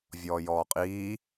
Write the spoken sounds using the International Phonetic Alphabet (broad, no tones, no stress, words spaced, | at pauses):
vʲɔːjɔːqʼiː